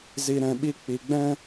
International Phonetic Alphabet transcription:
z i˧ ɾ ɛ̃˧ ɓ i˦ k͡p i˨ ɡ͡b ɛ̃˦

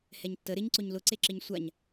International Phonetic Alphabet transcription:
h ɛ ɲ tː ə ɾ ɪ ɲ ǀ ʊ ɲ l ʊ ǀ e ǁ ɪ ɲ sʷ a ɲ

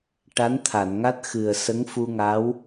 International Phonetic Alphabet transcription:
ʈ a˧˥ n t̪ʰ a˨˩˨ n ŋ a˦˥ t̚ x ɨ˨˩ ə̯ s ə˧˥ ŋ f u˧ ŋ a˧˥ w

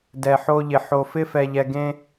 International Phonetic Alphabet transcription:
d ɛ˨ ħ o˦ ʎ ɪ˨ ħ o˨ f ɪ˦ f ɛ˨ ʎ ɛ˨ ɡ ẽ˦

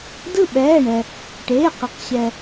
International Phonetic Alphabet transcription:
d ɯ˦˨ ɓ ɛː˩˧˩ ɳ ɛ˩ | ʈ eː˩˧˩ q ə˩˧ q ɕ ɛ˩

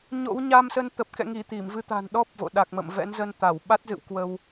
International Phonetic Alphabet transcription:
ɲ o̰˧˥ w ɲ a˧ m s ə˧ n t̪ ə˨˩ p̚ k ɛ̰˧˨ ŋ i˧˩ t̪ i˧˩ m v ɨ˧ t̪ a̤˨˩ n ɗ ɔ˦˥ p̚ v o̰˧˨ ɗ a˨˩ k̚ m ə̰˧˨ m v ɛ̰˧˥ n z ə˧ n t̪ a˧˩ w ɓ a˦˥ t̚ z ɨ̰˧˨ w k w ə˧ w

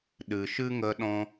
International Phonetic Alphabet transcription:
ɗ ɨ˨ ʃ ɨ˦ ŋ ə˧ ɗ ɔ̃˧

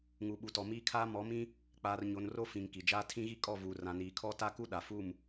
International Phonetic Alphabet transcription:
ŋ u˨ ɓ u˨ t ɔ˨ m iː˦ kʰ aː˦ m ɔ˨˦ m ĩ˦ | k͡p aː˨ r ɲ o˨ n r o˦ f ĩ˨ ŋ k i˨ d͡ʒ aː˦ tʰ ĩ˦ ɣ i˦ kʼ ɔ˦˨ v uː˨ r ã˨ n iː˨ kʰ ɔ˦ t a˦ k u˦ ɗ a˨ f u˦˨ m

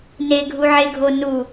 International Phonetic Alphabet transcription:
n e ɡʱ u ʕ e ɡʱ o n u

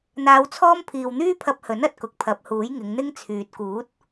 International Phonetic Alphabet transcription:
n̪ aː˧ w t͡sʰ ɔː˥ m pʰ iː˨ w n̪ yː˥ pʰ ɐ˧ p̚ h ɵ˨˥ n ɐ˨˥ t̚ k ʊ˨ k̚ pʰ ɐ˨˥ p̚ h uː˨˥ j ŋ ɪ˨˧ ŋ n̪ ɪ˥ ŋ t͡sʰ yː˨ t̚ k uː˨˥ t̚

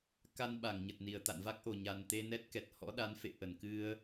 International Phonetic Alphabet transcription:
k a˧ n ɓ a˧˩ ŋ ɲ ə˨˩ t̚ n i˨˩ ə̯ t̪ a̰˧˨ n v a˦˥ k̚ ʔ o˨˩ ɲ a˨˩ n t̪ e˧ n ɛ˦˥ t̚ k ɛ˨˩ t̚ h ɔ̰˧˥ ɗ a˨˦ n f ḛ˧˨ ʔ ə˧˩ n k ɨ˧ ə̯

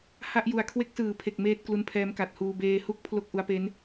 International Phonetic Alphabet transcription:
h a˦˥ ʔ j u˨˩ a̯ kʰ w e˦˥ k̚ s ɯː˨˩ pʰ e˨˩ k̚ m eː˦˥ t̚ k l u˧ n pʰ ɛː˦˥ m k a˨˩ t̚ h uː˧ b eː˧ h u˥˩ k̚ pʰ l o˥˩ k̚ ʔ u˦˥ a̯ p e˦˥ n

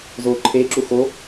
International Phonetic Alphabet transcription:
z o ǃʰ e ǁ u x o

